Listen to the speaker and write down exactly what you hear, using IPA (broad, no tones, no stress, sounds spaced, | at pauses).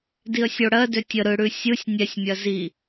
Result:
d i ə̯ sʲ o ɽ ɜ d ø tʲ ə ɾ ɯ ɽ ʉ sʲ ɯ sʲ nʲ ɛ sʲ mʲ ɜ z i